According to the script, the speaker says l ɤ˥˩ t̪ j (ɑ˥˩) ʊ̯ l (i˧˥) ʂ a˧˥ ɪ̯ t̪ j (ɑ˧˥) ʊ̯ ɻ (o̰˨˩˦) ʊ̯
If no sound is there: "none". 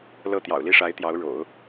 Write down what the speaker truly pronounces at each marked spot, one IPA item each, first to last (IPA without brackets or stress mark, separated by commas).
ɑ̰˨˩, i˥˩, ɑ˧˥, o̰˨˩˦